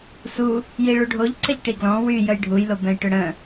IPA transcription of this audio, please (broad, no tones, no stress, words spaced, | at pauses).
su | jiɭuɖʱoʎ ǀəʎʈiɡlɔ̃ wy jəjɖʱuj lobɛ̃jʈʏɽə̃